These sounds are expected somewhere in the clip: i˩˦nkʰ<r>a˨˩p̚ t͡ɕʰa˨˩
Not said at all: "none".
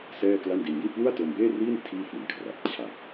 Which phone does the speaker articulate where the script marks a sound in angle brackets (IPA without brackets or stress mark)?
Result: r